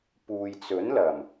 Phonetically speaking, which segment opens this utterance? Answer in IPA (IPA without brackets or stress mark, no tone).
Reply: p